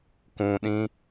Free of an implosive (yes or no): no